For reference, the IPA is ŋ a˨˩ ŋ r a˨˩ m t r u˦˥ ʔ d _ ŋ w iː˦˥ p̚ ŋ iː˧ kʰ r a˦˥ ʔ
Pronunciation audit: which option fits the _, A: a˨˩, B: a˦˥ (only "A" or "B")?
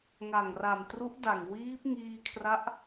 A